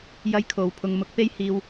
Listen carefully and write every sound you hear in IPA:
j ɐ˥ j kʰ o˨ w pʰ ʊ˧ ŋ m ʊ˨˥ k̚ p e˥ j h iː˧ w

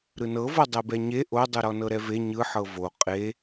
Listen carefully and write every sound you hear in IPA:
ɾ ɯ n ɤ v ɤ dˤ e b ɛ ɲ e ʔ o dˤ ɯ ɾ ɔ n ɤ ɾ ɛ v e ɲ ɯ ħ ɤ v o qʼ e

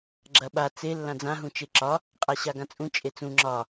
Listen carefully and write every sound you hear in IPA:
ɡ͡ǁ ɐ ɓ a t͡s e lː ã d͡z ã ɦ ũ t͡ʃ e ǁ ɒ | qʼ a ɕ a ɡ ã t͡sʼ ũ t͡ʃʼ e t͡s ũ ŋ͡ǁ ɒ

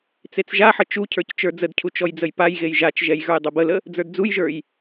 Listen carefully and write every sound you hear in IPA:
t͡s e t͡s ʒ a ħ ə t͡ʃ u cʰ ə˞ c t͡ʃ ə˞ d͡z ə d cʰ u t͡ʃ ɔ j d͡z ə j p a j ɣ e j ʒ a t͡ʃ ʒ ɛ j ɣ ə˞ j dˤ ə b ə l ə | d͡z ə˞ d d͡z u j ʒ ə˞ j

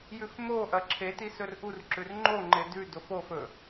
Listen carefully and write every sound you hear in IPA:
j ʉ f m o ʔ ɐ ǁʰ e t i s ɵ r ʔ u r ǁ ʉ r ŋ͡ǃ o ŋ͡ǃ e d ʉ d o f o f ɵ

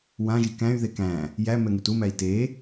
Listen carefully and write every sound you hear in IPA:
w ã ʒ i k æ̃ y̯ ð e k æ̃ | j æ m ɛ ŋ u t u m æ i̯ t e

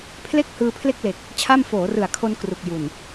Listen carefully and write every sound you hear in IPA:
pʰ l e˥˩ k̚ h ɯː˧ pʰ l e˥˩ k̚ l e˨˩ k̚ | t͡ɕʰ a˥˩ m f oː˩˦ r ɯ˨˩ a̯ kʰ o˧ n k r u˨˩ k̚ j u˨˩ n

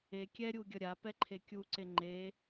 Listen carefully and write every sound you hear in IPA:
e kʲ ɛ ɾʲ u ɡʲ ʌ ɾʲ a p ɛ ǃʰ e kʲ u ǀ e ŋ͡ǃ e

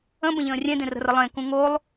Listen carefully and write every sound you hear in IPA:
ə̃ b ə̃ ʎ ə̃ː rʲ ẽ d ẽ r ə̤ r ə lˠ ẽ k ũ ŋ o lˠ

